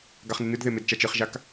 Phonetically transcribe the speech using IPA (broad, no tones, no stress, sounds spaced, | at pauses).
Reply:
ɡ a χ n ɨ n ɨ d ð e m e d t͡ʃ a t͡ʃ ɨ χ ʒ a k